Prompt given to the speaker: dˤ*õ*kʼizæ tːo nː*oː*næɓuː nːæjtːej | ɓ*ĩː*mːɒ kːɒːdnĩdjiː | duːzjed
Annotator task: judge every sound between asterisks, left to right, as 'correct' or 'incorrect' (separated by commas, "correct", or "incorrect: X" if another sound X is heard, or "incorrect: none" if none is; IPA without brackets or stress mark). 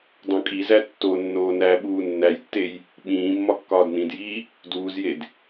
correct, correct, correct